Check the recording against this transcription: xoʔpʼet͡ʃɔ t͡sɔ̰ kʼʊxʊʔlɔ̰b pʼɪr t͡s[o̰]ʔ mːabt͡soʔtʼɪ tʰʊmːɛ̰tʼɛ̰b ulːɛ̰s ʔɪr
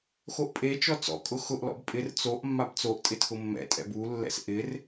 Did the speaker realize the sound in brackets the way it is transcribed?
no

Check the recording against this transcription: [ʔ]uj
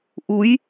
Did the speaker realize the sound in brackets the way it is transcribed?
yes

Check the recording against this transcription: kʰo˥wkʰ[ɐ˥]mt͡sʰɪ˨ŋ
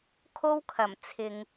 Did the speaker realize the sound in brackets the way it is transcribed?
no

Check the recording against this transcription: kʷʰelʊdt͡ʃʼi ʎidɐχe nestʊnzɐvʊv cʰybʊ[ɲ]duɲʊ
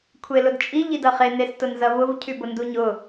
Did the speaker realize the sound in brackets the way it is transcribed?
no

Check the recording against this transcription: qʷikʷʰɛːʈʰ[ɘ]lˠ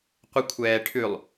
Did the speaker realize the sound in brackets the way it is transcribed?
no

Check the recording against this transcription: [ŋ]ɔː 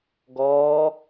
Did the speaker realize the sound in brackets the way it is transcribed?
no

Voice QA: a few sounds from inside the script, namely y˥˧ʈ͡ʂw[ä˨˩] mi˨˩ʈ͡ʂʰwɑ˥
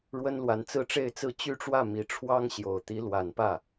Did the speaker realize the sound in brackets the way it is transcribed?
no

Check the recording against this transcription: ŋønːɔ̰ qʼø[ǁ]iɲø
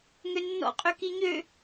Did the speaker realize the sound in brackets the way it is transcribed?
no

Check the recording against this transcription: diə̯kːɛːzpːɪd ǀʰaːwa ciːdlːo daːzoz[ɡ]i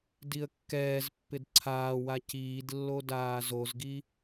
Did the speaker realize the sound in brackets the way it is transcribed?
yes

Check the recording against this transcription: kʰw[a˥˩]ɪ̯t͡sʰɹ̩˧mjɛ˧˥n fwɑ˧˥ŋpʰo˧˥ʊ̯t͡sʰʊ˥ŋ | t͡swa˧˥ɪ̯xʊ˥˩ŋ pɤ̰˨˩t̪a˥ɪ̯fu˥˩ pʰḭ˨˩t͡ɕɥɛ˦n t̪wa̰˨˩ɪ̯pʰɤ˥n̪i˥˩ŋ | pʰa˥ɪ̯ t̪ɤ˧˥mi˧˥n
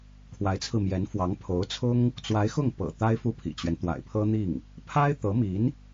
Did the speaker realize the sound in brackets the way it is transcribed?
no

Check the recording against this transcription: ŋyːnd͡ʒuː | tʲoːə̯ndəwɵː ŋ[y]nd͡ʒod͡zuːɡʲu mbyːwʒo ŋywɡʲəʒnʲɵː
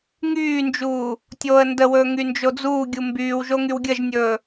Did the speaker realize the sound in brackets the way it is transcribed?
yes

